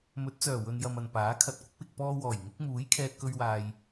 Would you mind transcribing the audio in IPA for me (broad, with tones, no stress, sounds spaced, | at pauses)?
m ɵ˨˥ t̚ t͡s œː˨˩ w ɵ˨ n j ɐ˧ m ɐ˨ n p aː˨˥ kʰ ɐ˨ t̚ kʷ ɪ˨˥ k̚ w ɪ˨ k̚ p ɔː˧ w ɔː˨˩ j ŋ ɪ˨˥ k̚ m uː˨˥ j kʰ ɛː˧ t̚ k ɵ˧ ɥ w aː˨ j